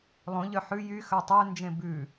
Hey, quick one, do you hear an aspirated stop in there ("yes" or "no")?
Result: no